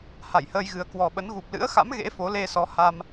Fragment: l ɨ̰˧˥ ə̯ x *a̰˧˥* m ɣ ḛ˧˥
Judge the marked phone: correct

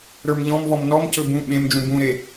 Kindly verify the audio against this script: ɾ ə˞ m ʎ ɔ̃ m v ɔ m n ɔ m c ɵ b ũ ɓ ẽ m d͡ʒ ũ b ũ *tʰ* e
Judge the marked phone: incorrect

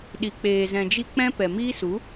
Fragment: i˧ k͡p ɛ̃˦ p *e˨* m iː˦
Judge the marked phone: incorrect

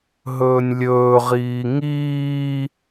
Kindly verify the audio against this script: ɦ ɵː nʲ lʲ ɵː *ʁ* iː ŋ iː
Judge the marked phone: correct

